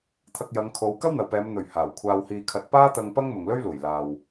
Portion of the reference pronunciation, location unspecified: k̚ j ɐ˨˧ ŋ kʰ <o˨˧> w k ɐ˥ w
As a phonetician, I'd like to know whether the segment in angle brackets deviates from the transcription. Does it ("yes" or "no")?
no